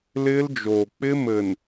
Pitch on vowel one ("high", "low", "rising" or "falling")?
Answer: high